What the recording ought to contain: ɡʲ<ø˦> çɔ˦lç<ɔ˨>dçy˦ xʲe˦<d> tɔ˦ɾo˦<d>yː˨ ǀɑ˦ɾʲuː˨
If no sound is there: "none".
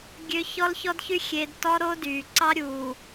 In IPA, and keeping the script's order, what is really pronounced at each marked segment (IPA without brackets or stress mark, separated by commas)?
ø˦, ɔ˦, d, d